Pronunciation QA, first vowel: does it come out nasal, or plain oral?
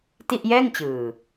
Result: oral